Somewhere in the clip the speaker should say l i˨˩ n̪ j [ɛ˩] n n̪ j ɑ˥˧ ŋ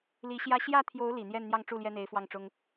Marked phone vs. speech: incorrect: ɛ˥˧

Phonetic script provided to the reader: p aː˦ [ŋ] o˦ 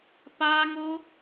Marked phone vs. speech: correct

